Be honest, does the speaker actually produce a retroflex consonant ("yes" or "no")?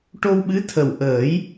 yes